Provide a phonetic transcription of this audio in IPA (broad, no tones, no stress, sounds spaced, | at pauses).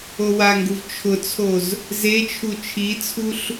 o w a ŋ ɡ u v t͡ʃʰ ʊ t͡sʰ o z | z e t͡ʃʰ u t͡ʃʰ i t͡sʰ u ɬ